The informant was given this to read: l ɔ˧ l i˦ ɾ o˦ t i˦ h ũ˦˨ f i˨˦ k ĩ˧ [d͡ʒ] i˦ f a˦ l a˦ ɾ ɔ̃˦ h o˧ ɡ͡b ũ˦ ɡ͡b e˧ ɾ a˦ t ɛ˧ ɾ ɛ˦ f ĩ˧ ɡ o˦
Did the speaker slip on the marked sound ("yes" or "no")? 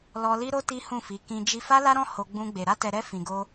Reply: no